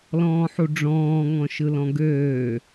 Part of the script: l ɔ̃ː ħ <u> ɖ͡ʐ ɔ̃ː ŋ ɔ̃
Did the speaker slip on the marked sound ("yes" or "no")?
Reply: no